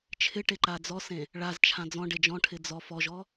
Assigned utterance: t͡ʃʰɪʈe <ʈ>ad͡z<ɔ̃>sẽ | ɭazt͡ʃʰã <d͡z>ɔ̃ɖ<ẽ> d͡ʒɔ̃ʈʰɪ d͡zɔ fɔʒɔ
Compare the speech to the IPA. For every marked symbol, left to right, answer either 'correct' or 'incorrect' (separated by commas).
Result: incorrect, incorrect, correct, incorrect